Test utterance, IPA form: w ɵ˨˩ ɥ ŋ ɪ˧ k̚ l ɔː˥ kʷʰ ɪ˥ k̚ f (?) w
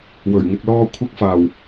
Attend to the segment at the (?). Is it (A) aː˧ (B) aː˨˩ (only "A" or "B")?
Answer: B